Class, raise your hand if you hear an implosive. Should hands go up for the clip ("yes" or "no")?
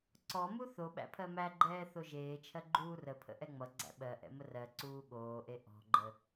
yes